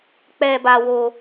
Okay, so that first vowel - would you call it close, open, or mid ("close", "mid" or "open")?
mid